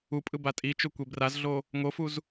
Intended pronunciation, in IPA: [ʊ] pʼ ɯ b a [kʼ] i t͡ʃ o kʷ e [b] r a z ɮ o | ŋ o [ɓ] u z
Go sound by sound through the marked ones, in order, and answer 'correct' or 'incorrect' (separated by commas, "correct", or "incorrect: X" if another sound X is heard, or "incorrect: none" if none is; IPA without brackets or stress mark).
incorrect: u, incorrect: tʼ, correct, incorrect: f